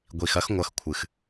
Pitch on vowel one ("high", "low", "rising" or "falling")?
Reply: low